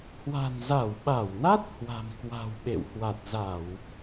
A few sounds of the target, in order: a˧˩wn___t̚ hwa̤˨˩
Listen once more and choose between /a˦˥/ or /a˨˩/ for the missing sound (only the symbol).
a˦˥